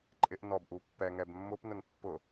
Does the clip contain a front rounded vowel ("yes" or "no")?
no